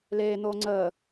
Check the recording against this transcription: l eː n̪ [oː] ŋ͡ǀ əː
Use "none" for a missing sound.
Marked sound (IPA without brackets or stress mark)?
oː